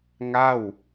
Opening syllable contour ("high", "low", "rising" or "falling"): falling